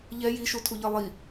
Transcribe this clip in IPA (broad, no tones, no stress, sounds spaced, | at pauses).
ʎ ɛ j i ʃ u tʰ u ʎ ʌ lˠ i